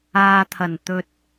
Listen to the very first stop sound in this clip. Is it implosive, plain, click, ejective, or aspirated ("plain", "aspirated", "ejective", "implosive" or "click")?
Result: aspirated